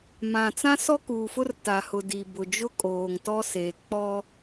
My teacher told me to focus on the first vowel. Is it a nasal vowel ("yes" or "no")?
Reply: yes